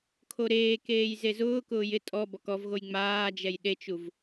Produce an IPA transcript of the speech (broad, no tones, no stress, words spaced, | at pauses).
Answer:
kʰoɾeːkeːj zezʊːkʊːj ɪ tʼɔ bɔkɔvɣoj ŋ͡maːd͡ʒɛj ɗet͡ʃuv